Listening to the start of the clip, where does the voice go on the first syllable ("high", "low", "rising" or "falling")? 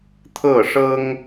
falling